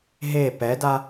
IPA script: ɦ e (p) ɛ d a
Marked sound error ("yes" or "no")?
no